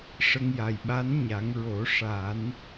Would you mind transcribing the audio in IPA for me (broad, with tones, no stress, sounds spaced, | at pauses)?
ʂ ə˧ ŋ j a˨˩ j ɓ a˧˥ n ɲ a˨˩˦ ŋ ɹ o˨˩˦ ʂ a˨˩˦ n